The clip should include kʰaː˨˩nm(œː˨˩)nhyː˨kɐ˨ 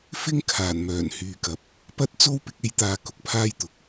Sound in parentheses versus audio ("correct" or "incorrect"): correct